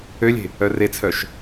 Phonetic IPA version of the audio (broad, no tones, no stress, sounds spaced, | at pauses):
ø lʲ e̤ | œ r e t͡sʰ œ ʃ